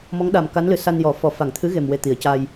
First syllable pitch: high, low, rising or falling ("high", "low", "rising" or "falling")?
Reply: rising